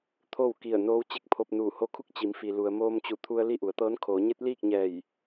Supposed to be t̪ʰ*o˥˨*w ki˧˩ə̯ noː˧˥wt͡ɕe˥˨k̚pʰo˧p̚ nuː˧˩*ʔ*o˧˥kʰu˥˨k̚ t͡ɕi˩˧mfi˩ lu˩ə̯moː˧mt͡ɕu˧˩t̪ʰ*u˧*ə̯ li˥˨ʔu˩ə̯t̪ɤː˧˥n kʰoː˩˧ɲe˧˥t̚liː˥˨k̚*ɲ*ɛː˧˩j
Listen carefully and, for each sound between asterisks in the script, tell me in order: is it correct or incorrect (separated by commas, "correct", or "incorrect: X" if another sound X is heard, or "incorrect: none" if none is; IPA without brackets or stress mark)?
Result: correct, incorrect: h, correct, correct